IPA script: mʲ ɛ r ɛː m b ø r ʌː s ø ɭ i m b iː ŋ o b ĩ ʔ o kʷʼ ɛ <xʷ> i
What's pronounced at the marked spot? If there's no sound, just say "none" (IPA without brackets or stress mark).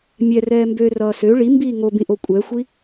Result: xʷ